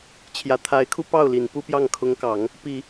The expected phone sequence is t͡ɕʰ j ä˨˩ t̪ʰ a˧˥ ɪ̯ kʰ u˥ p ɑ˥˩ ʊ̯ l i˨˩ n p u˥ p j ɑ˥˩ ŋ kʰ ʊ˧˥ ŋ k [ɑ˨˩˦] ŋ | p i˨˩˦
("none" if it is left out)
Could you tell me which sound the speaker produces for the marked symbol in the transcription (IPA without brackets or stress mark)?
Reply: ɑ˨˩˦